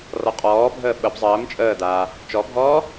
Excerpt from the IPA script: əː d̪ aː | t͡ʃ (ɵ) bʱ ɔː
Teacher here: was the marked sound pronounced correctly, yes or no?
no